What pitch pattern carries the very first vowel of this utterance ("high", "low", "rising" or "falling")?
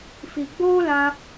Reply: low